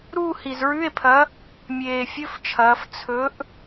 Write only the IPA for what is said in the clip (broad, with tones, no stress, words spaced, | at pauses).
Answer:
ɾuː˥˧hi˨˩zɹʉ˧˥˧e̯pʰɐ˨˥ | mʲeː˨˩fʲɵ˧˥˧ft͡ʃʰɐː˩˧f t͡sʰɵ˨˥ʔ